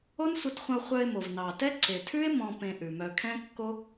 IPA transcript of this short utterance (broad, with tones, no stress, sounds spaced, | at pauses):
o˦ n sʷ ə˧ t χʷ ə̃˧ o̯ χʷ œ˧ e̯ m o˨ v n ɑ˨ t ɛ˦ ǀ e˨ tʰ ʉ˦ e̯ m ɔ̃˧ p ẽ˧ ʔ ʉ˨ m œ˧ kʰ ɛ̃˦ kː o˦